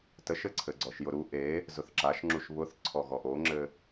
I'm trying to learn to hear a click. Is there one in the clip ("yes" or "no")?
yes